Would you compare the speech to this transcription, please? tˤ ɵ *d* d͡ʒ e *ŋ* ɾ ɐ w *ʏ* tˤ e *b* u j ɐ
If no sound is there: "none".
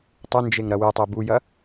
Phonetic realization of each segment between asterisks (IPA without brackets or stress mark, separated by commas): n, ŋ, ɨ, b